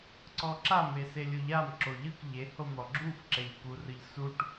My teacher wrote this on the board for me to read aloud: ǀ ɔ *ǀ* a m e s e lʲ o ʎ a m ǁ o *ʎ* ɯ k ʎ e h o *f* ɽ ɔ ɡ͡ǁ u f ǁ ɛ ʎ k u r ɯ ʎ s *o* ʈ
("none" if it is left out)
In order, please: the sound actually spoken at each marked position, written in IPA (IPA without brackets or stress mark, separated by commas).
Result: ǁ, ʎ, m, u